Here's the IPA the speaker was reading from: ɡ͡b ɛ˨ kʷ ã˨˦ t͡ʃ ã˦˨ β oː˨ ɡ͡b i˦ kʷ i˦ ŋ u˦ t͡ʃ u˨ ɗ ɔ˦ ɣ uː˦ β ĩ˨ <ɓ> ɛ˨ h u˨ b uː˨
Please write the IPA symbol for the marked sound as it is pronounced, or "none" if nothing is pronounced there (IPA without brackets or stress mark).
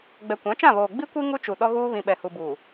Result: ɓ